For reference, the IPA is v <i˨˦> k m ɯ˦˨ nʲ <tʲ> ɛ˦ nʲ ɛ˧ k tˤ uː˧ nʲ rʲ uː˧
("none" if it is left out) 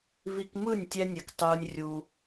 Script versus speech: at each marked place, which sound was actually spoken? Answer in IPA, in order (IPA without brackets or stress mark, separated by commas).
i˧, tʲ